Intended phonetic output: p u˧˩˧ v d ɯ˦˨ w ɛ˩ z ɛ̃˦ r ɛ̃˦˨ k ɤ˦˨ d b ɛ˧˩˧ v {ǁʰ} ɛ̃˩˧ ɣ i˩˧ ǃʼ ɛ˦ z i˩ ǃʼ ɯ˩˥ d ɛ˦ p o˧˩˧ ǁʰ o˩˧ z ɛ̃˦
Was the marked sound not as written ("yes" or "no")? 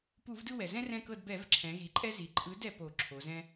no